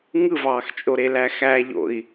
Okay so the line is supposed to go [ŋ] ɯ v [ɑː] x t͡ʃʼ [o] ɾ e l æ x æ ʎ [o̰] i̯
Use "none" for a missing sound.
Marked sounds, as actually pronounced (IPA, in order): ŋ, ɑː, o, o̰

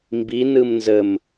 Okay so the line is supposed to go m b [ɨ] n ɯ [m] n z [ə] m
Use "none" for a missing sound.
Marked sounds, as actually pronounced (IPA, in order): i, m, ə

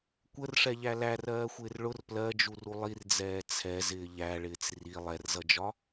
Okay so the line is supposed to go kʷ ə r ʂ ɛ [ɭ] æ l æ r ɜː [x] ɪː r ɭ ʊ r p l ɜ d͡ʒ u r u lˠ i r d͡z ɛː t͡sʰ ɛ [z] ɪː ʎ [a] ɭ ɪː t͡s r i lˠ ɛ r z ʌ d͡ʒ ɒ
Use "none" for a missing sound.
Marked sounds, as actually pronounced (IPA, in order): ʎ, xʷ, z, æ

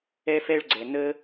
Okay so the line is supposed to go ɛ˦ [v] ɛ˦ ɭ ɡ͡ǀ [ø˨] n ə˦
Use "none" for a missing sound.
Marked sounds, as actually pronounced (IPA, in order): f, ɛ˨

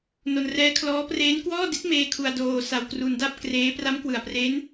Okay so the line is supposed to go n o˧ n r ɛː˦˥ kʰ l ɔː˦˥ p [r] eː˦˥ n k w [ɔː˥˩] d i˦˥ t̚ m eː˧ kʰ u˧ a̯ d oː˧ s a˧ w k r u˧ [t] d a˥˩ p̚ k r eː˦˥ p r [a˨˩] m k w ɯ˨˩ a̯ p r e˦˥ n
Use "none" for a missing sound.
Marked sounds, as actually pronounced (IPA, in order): r, ɔː˥˩, n, a˦˥

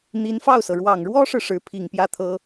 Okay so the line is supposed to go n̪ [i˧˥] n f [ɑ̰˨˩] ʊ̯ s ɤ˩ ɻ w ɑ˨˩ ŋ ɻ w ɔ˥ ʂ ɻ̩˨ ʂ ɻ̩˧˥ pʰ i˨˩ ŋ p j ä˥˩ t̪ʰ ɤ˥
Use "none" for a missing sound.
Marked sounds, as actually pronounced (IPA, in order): i˧˥, ɑ˥˩

